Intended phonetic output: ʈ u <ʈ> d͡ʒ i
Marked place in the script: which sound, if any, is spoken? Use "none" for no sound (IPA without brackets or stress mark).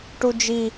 none